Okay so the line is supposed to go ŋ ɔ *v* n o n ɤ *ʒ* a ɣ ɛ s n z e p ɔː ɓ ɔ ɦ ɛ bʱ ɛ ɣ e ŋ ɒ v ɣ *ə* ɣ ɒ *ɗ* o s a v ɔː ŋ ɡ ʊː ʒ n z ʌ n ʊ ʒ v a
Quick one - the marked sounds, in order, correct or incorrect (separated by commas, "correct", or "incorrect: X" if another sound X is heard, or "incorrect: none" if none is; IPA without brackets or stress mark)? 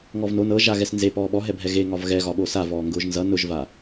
correct, correct, incorrect: ɛ, incorrect: ɓ